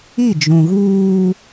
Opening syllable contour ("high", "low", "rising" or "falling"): falling